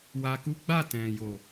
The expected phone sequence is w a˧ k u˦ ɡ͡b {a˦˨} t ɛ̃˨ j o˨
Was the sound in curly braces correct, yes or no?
yes